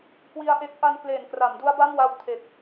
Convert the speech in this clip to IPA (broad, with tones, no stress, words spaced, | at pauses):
kwi˦˥a̯ ʔe˦˥k̚ ʔa˧nkleː˨˩n kra˩˦mdu˦˥a̯ba˥˩mwa˧w tʰe˨˩k̚